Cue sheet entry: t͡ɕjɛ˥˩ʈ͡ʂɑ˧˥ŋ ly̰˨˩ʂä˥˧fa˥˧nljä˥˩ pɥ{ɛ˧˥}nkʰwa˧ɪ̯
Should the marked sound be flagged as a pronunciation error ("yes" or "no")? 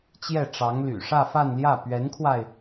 no